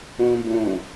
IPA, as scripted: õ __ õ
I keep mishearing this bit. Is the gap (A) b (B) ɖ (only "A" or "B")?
A